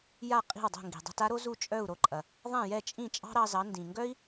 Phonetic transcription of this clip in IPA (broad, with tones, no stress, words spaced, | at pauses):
ja˥˩ qʼi̤˥˩wdˤo̤˥˩ ŋɡi̤˩dˤo̤˧ta˥ɾo˥ zu˥˩t͡ʃʼœ˥˩u̯ ɾo˧ǃʼɐ˩ | ðˤɛ̃˥˩jɛ˥˩t͡ʃʼĩ˥˩ t͡ʃʼɑ̤˥ɾɑ˧zɑ˩˥ ndĩ˩ŋɡœ˥i̯